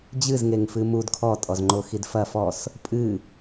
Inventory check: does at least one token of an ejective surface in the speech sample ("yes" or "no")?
yes